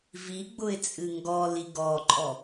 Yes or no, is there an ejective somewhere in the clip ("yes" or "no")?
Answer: yes